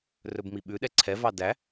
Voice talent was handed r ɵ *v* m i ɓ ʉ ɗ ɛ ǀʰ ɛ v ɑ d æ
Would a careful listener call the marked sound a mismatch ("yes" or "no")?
yes